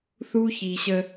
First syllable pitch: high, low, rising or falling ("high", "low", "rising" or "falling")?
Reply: high